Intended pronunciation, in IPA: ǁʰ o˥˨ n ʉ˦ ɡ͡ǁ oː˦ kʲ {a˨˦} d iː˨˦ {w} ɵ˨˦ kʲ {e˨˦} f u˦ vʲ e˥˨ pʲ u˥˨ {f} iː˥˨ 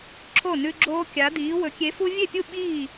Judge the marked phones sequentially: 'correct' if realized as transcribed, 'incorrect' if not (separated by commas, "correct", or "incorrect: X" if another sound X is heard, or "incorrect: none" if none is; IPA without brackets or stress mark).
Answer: correct, correct, correct, incorrect: ɓ